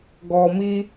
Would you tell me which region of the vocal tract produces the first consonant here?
velum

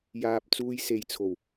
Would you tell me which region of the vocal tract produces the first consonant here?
palate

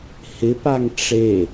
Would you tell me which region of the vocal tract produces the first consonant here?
throat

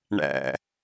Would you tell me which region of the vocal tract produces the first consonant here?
retroflex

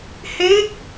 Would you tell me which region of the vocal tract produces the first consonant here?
throat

